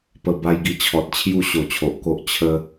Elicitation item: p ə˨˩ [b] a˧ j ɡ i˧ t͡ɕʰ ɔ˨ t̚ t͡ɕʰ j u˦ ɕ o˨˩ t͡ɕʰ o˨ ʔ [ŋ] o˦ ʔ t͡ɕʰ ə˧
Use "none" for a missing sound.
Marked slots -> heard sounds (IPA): b, k

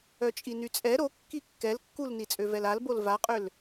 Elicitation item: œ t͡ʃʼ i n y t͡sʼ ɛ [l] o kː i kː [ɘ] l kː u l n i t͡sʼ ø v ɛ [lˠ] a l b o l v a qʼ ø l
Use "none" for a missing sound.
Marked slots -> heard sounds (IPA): ɾ, ɛ, l

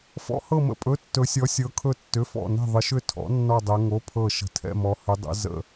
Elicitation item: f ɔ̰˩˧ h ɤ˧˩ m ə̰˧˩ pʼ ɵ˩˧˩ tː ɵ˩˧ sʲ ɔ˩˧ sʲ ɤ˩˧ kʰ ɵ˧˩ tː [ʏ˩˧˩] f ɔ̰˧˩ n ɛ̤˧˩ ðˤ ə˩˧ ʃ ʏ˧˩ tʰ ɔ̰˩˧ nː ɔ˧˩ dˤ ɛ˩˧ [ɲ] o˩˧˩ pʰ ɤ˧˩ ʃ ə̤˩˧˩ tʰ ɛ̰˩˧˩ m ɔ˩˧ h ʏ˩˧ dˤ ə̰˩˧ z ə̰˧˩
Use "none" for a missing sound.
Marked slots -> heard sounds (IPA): ʏ˩˧˩, ŋ

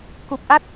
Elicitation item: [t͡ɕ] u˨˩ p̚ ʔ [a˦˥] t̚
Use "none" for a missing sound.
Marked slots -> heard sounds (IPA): k, a˦˥

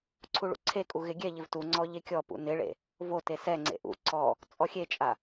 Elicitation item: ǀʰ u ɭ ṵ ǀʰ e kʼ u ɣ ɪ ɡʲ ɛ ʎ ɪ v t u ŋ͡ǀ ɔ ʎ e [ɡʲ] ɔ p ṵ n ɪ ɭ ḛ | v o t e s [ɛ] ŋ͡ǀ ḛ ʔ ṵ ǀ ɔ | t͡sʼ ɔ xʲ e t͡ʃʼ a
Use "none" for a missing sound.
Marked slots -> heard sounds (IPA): kʲ, ɛ

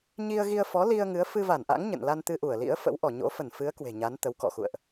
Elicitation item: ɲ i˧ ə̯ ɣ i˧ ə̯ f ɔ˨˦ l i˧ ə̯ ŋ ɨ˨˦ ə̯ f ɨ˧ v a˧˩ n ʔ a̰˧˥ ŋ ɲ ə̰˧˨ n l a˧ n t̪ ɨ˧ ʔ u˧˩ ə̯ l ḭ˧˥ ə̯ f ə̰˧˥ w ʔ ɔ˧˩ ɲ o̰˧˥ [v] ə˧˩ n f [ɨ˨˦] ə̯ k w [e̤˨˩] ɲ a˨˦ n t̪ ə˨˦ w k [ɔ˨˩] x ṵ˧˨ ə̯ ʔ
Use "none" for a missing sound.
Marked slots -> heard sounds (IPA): f, ɨ˨˦, e̤˨˩, ɔ̰˧˨

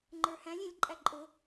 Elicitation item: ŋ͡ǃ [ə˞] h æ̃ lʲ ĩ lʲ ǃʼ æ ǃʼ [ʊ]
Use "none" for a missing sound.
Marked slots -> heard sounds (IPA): ə˞, ʊ

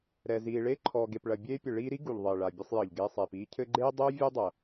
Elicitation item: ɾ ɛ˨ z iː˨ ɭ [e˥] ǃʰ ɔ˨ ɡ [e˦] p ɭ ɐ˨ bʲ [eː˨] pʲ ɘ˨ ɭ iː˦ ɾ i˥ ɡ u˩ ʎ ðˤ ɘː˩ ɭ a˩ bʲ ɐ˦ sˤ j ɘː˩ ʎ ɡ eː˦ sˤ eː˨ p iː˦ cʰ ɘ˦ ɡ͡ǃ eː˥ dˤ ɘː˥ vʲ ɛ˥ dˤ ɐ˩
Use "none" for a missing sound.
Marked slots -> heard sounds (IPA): e˥, e˨, eː˥

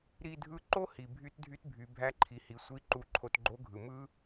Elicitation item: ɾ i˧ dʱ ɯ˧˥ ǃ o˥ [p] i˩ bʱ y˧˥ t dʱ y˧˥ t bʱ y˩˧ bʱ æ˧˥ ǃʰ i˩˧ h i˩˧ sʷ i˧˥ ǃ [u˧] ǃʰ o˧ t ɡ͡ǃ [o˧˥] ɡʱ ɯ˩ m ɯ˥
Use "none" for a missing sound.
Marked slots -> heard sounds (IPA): h, u˧, o˧˥

